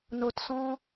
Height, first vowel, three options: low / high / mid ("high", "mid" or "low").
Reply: mid